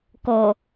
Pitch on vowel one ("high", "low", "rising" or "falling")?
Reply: low